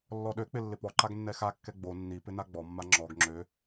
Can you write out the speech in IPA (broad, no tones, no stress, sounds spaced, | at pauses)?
lː ɔ ɗ ø k͡p ɪ lː ɪ p ɔ ǃ a ɡ nː ɛ x a kː ɛ ɡ͡b o nː i p ɪ n a ɡ͡b ɔ mː a ŋ͡ǁ ɔ ɡ ŋ͡ǁ ø